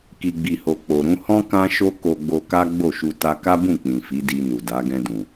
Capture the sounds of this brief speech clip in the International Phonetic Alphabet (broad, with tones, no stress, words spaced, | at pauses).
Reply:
ki˨ɡ͡bi˨ho˨ k͡po˨ ɾũ˧hɔ̃˦ kã˦ʃo˦ ko˧ɡ͡bo˧ka˦ ɡ͡bo˦˨ʃu˧ ta˧ka˦bũ˦˨ k͡pĩ˨fi˨˦ di˧nu˨da˨˦ ɡɛ̃˧dũ˨